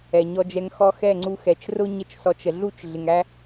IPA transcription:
ɛ˨ɲɔ˧d͡ʒɛ˧ŋ xɔ˧xɛ˦˨ŋ͡ǀu˧ xɛ˨t͡ʃrʊ˦ ɲə˦t͡ʃsɔ˧t͡ʃ ə˨ɮu˦˨t͡ʃ ɮɪ˨ŋæ˦

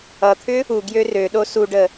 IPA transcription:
ʌt̪ʰʏ | u ɡjørøɗo suɖə

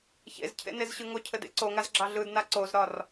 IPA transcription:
çḛzcʰḛnezɕɯ ŋocʰɘdḛ ǀoŋazɡ͡ǁɑ ɮɯdna ǀozɾɒr

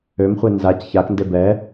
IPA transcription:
ømχʷe nzac çaknde bɛ

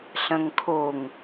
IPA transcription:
ɬɐ̃ŋkʰoŋ

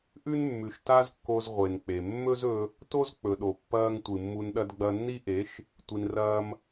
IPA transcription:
ʔʉ˦nmːʉ˨ʃta˦zkːo˧z ʁʷe˨nk͡pe˨ mːɵ˦zɵ˧ | to˦zk͡pɵ˨ɗo˨ pːɐː˧ŋ tʷɨ˨mːu˧nɗɐ˦d ɡ͡bɐ˧nːi˦ʔe˨˦ʃ | tʷi˧nrɐː˦m

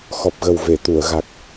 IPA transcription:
xɔ˨˩p̚ɣə˨˩w ve˨˩˨t̪u˨˩˨ə̯ɣa˨˩k̚

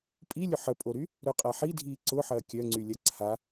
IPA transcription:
pʼilʲʊ ħəpʼoɾy | ɾœqʼaħidʱiː ǀʊ ħɐːkʲœŋ͡ǀylʲɐ ǀʰa

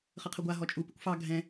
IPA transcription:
χəqʰəɡʷa ɦɔt͡ʃʼu pɨkʷfɑ ɡʱɛ̃

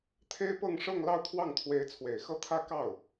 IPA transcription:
t̪ʰe˥ɪ̯pɤ˥˧ŋʂɤ˥˧ŋ lɑ˥˧ʊ̯t̪ʰwɑ˥˩ŋt̪ʰwe˧˥ɪ̯ t͡sʰwe˨˩ɪ̯xɤ˥˩t̪ʰä˥ kɑ˥˩ʊ̯

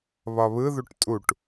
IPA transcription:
βɒβɯðuʈ tʼuʈ

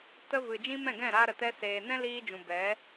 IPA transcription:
tə˧vɨ˨ d͡ʒĩ˦mɛ̃˦˨ɡɛ̃˦˨ɾaː˧ ɾə˨ tɛ˧ seː˨nɛ̃˦liː˧d͡ʒũ˨ bɛ˨˦

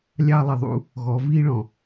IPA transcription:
lʲɑ˦lˠɪ˨ðˤṵ˦ | ɣɔ˨˦viː˦ɭɔ̃˨

